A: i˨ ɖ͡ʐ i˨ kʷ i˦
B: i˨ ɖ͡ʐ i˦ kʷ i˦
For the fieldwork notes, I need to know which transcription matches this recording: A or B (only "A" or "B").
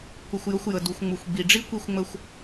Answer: B